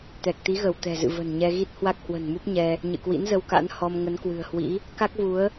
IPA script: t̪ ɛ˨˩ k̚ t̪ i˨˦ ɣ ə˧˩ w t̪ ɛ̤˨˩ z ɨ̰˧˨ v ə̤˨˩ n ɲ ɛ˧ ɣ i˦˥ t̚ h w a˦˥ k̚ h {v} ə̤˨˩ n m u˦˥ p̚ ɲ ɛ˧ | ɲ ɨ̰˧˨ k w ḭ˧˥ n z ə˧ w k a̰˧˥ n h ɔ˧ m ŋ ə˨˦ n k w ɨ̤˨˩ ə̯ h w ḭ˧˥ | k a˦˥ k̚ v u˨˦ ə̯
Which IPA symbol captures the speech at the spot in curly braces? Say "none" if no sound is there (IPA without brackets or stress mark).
w